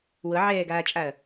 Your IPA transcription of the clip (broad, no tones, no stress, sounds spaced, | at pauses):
w ɤ ʕ ɛː ɡ aː t͡ʃʼ a ɐ̯